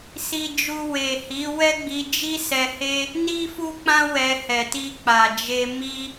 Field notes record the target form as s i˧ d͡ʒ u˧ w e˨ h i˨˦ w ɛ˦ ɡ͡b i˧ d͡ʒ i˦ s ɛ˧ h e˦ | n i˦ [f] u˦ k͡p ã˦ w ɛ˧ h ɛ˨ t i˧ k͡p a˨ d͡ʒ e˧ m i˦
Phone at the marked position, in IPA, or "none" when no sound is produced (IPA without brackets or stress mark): f